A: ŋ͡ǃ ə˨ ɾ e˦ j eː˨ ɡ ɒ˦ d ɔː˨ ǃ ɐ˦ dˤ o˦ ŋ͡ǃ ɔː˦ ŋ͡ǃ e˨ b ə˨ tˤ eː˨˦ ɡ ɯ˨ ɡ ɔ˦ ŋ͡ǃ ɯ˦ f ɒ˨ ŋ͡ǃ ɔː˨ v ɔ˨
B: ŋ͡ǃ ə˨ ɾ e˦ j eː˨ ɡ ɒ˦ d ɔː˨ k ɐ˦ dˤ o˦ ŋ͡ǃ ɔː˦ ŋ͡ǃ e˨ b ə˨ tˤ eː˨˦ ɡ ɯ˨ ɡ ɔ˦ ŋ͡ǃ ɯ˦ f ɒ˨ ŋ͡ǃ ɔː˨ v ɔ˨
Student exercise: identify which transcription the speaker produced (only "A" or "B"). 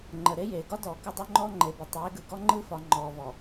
B